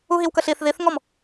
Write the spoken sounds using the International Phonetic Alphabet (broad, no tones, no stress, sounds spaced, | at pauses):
u ɦ i w k ə ɬ i θ ð i θ ŋ ɔ m